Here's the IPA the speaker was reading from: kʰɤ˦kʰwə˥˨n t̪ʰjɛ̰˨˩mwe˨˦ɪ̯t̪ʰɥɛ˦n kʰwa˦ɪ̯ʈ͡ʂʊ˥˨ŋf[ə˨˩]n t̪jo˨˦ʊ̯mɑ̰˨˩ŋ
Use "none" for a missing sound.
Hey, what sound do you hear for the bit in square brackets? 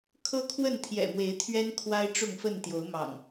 ə˥˨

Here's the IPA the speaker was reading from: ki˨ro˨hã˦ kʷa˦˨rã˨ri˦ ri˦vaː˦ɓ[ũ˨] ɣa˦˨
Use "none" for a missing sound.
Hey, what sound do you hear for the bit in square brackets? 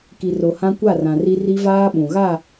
ũ˨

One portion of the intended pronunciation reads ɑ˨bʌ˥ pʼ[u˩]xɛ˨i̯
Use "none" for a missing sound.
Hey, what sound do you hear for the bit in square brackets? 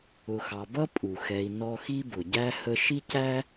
u˩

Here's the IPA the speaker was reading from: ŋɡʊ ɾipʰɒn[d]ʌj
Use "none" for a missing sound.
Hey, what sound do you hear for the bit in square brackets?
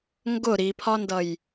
d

